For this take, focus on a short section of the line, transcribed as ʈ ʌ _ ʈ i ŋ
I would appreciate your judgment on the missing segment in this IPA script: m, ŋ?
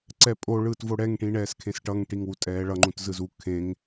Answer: ŋ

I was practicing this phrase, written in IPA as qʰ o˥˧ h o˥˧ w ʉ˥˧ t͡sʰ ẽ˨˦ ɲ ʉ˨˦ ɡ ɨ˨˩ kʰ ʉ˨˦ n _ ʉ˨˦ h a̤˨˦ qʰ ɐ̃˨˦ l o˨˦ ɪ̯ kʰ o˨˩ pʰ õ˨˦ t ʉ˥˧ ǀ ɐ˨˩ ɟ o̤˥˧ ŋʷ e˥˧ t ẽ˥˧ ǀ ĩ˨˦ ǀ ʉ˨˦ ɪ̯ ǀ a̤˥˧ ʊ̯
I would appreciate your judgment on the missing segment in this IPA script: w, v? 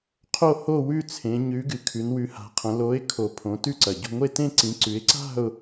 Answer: w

